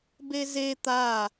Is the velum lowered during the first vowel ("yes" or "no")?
no